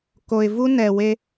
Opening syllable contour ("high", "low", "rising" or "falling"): low